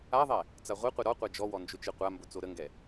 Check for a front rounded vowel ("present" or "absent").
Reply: absent